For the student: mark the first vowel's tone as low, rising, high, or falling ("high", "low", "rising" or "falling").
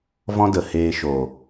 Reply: high